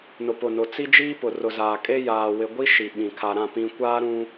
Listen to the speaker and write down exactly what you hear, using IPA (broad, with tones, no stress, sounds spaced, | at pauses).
n ʊ˨ p ʊ˨ n ʊ˨ t͡s i˦ d͡ʒ iː˦ p ʊ˨ r ʊ˨ z aː˨ kʼ e˦ j aː˨ w ɪ˨ ɡʷ i˦ ʃ i˨ ɓ ĩ˨ kʰ a˨ ɾ ã˦˨ p ĩ˦ kʷ aː˦ ɾ ũ˦